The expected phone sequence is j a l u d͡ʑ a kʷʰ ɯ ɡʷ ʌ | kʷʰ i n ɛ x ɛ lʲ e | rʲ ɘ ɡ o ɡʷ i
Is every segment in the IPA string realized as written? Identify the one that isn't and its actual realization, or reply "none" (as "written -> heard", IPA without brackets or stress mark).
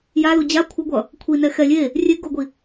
ɘ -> e